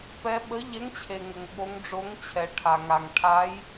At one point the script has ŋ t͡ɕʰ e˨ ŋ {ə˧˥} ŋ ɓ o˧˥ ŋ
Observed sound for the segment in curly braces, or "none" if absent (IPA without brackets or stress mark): ə˨